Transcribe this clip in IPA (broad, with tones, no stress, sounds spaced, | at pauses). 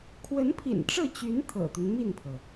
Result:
kʰ w ə˧˥ n pʰ ḭ˨˩ n ʈ͡ʂ ɤ˥˩ t͡ɕ y˧˥ n t̪ʰ ɤ̰˨˩ t̪ y˦ n m i˥˩ n pʰ ɤ˩